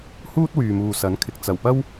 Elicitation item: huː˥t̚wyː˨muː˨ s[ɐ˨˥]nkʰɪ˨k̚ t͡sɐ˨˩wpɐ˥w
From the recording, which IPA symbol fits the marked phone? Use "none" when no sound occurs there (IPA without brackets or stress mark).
ɐ˨˥